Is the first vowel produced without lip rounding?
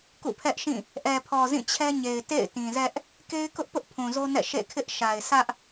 no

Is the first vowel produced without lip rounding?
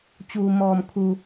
no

